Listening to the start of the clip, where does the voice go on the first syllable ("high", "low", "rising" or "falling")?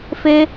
high